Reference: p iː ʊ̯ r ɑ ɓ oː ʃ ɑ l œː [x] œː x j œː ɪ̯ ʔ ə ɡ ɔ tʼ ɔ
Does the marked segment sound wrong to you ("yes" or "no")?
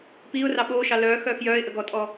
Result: no